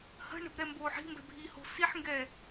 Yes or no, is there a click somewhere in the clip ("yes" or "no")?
no